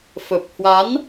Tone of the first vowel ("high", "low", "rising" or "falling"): low